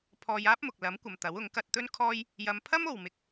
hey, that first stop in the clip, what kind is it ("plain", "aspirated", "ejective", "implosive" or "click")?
aspirated